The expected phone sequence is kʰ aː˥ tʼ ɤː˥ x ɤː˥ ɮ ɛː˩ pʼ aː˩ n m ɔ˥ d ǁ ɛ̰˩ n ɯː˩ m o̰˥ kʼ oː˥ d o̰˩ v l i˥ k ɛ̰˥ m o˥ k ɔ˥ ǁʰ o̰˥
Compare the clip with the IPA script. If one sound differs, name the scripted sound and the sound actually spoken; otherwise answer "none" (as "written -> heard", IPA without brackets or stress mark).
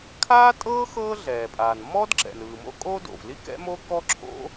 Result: none